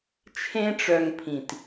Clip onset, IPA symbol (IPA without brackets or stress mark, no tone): t͡ʃʰ